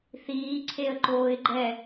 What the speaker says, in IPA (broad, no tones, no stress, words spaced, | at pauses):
θiː ǀʰeə̯ǃoːɪ̯ɡ͡ǃɛ